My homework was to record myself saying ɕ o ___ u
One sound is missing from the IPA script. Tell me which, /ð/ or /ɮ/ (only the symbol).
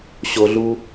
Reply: ɮ